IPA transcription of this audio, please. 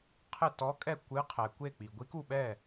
qʰ ɘ˥˩ t ɔ˧˥ kʼ ɛ˥˩ kʷ ɨ˧˥ qʰ ɛ˩ kʷ e˥˩ k͡p i˩ ɡʷ i˧˥ k u˥˩ ɓ ɛ˥˩

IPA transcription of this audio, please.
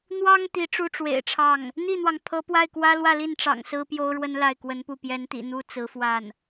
n̪ w ɑ˥ ŋ t̪ i˧˥ ʈ͡ʂ u˥ ʈ͡ʂ w ḛ˨˩ ɪ̯ ʈ͡ʂʰ ɑ˥˩ ŋ | n̪ i˥˩ n̪ w ɑ˩ ŋ pʰ ɤ˧˥ p w a˥˩ ɪ̯ k w ä˥ l w ä˥˧ l i˥˩ n ʈ͡ʂ ɑ̰˨˩ ŋ s ɹ̩˥ p j o˥ ʊ̯ ɻ w ə˥ n l a˥˩ ɪ̯ k w ə˧˥ n p u˥˩ p j ɛ˧˥ n t̪ ḭ˨˩ n̪ u˥ t͡s ɹ̩˧˥ f w a˥˩ n

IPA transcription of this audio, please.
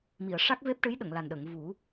m i˨˩˨ ə̯ ʂ a˦˥ k̚ v e˦˥ p̚ ʈ ɨ˧˥ j ɗ ə˨˩˨ ŋ l a˨˩ n ɗ ə˨˩˨ ŋ v u˨˩˦

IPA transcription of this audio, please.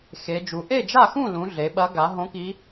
x e˩˧ d͡ʒ u˩˧ ʔ e˥˨ d͡ʒ a˥˨ x ũ˥˨ l ũ˩˧ ɮ e˩˧ ɓ ɐ˧˥ ɡ a˩˧ ɦ õ˧˥ k i˧˥

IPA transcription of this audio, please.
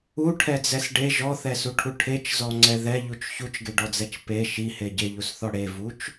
u ʈʰ ɛ d͡z ɛ s ɖ e ʒ ɔ θ ɛ s u ʈʰ u ʈʰ e t͡ʃ z ɔ ŋ͡ǀ ɛ ð ɛ ʎ u t͡ʃ ç u t͡ʃ ɡ e ɖ ɔ d͡z ɛ t͡ʃ p e ʃ i h e ɟ e ʎ u s θ ɔ ɽ e v u t͡ʃ

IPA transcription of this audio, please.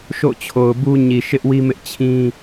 ʃ o̰˦˨ t͡ɕʰ o˨ ʊ̯ b u˦ ɲ i˨ ʃ ɪ˦ ʔ w i˦ m ɪ˦ ʔ t͡ɕʰ ĩ˦

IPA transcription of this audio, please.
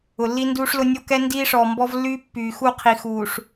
ʊ˨ lː i˦ n d uː˦ ʂ l ʊ˦ nʲ o˦ k ɛ˦ n d iː˦ ʂ ɔː˨ m b ɔ˦ v lː yː˦ pː yː˨ x u˦˨ qʰ i˨ x uː˨ ʂ

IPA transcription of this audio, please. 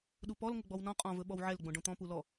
ɗ u p ɔ l ŋ ʊ ɡ͡b ɔ w n ɔ̃ qʼ ɔ̃ v ɵ ɓ ɔ w ʕ ɛ l ɡ͡b õ ɖ õ t̪ ɔ̃ p u l ɔ

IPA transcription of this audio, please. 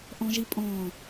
ʔ ɔ̃ ʒ i pʼ ɔ̃ː

